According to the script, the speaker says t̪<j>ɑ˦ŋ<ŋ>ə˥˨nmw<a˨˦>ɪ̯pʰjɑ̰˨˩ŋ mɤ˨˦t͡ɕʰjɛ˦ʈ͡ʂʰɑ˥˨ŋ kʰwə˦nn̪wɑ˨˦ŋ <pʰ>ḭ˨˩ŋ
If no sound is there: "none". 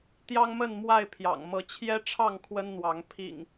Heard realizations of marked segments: j, m, a˥˨, pʰ

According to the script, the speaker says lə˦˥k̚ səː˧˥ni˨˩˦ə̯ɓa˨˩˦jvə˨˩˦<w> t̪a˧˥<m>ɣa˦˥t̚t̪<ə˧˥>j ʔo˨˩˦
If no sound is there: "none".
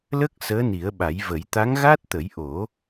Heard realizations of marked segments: j, ŋ, ə˨˩˦

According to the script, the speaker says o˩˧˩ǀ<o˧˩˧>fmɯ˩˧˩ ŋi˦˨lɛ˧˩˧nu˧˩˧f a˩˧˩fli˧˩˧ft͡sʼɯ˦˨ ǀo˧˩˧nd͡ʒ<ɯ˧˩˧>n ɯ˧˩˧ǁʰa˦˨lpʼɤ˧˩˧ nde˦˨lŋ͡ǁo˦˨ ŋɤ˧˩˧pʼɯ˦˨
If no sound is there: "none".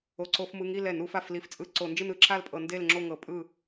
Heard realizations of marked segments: o˧˩˧, ɯ˦˨

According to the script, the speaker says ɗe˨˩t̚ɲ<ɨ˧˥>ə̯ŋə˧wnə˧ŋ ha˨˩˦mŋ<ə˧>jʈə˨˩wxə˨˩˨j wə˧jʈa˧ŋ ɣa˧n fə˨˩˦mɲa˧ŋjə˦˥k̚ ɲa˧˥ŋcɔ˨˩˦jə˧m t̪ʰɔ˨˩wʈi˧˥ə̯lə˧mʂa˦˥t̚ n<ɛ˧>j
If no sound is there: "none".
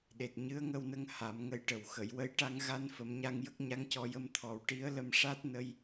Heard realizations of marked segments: ɨ˧˥, ə˧˥, ə˧

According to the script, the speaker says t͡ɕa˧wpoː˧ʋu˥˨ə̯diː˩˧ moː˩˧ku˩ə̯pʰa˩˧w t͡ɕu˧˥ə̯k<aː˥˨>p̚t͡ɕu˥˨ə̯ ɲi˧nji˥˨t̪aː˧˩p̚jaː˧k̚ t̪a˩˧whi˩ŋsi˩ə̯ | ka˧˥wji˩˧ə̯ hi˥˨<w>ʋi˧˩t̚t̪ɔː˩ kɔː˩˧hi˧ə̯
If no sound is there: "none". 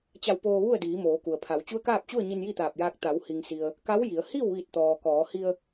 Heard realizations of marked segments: aː˥˨, w

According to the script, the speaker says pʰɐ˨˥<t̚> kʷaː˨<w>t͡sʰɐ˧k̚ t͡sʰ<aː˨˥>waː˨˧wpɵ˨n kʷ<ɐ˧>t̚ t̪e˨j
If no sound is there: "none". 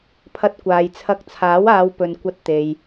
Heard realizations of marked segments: t̚, j, aː˨˥, ɐ˧

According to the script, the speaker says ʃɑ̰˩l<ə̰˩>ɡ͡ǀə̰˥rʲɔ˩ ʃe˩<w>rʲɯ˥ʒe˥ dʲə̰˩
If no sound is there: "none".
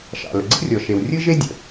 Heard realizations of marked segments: ə̰˩, w

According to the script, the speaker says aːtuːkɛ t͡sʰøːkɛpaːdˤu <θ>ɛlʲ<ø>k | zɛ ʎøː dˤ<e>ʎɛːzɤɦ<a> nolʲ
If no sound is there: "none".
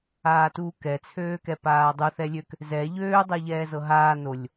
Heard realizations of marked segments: θ, ø, ɛ, aː

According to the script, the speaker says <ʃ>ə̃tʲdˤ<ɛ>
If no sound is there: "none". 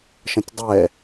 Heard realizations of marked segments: ʃ, ɛ

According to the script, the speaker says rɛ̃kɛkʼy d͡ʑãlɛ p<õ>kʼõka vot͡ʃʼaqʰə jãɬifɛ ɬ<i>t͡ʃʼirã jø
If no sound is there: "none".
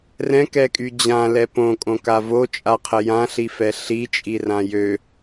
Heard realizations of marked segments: õ, i

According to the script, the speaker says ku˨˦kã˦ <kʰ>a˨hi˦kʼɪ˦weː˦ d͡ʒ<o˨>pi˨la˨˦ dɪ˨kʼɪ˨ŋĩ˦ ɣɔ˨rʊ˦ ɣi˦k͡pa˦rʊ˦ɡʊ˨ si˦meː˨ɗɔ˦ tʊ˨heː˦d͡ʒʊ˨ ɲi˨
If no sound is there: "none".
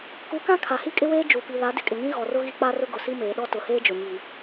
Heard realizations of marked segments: kʰ, u˨

